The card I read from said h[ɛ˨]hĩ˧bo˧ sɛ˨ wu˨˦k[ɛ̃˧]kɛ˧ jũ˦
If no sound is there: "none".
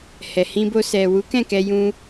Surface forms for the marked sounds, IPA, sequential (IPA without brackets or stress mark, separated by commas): ɛ˨, ɛ̃˦˨